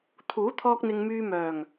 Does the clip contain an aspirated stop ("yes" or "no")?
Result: yes